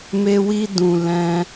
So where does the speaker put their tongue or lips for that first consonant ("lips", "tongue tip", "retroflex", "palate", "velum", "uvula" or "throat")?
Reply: lips